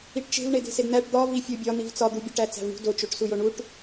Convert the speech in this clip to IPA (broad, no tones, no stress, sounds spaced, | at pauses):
i ʈ t͡ʃ e̤ v ɳ e d e̤ s e d n̪ æ ʈ d̪ ɒ v i fʲ u bʲ ɒ n̪ i v t͡s ɒ d̪ u bʲ o ʈ æ t͡s æ̤ v ɳ ṳ d o t͡ʃ o ʈ s u j o ɳ u ʈ